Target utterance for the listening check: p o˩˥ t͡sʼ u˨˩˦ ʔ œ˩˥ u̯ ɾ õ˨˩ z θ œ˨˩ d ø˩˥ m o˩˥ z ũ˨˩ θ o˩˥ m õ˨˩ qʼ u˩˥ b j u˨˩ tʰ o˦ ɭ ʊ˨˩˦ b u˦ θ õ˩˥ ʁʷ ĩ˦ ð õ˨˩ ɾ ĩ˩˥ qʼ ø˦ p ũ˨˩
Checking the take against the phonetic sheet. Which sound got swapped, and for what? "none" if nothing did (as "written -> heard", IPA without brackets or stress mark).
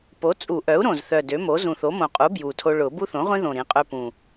none